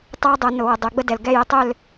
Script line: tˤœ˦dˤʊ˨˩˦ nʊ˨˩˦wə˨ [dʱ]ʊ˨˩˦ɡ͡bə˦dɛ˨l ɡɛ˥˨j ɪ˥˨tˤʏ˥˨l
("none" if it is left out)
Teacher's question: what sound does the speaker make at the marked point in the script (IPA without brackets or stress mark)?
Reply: dˤ